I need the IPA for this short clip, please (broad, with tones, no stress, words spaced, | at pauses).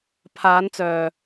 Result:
pʰaː˨˧nt͡sœː˨